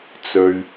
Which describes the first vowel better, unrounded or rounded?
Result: rounded